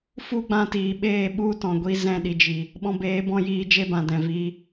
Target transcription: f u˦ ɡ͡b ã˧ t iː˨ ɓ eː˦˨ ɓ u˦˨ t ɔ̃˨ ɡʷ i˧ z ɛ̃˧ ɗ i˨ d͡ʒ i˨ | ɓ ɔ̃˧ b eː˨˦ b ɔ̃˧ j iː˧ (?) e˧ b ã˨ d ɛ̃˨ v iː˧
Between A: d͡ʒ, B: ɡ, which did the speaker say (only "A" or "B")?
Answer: A